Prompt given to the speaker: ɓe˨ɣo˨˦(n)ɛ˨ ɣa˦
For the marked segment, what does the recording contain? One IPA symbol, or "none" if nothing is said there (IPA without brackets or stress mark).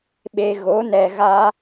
n